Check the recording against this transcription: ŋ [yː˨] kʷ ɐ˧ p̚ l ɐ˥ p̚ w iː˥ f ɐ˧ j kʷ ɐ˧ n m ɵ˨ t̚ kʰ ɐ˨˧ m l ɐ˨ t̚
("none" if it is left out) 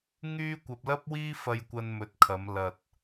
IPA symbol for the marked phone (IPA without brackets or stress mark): yː˥